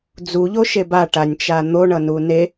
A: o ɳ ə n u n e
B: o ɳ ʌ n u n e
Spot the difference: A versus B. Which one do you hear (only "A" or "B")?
B